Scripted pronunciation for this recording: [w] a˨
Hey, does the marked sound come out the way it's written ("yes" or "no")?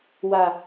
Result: yes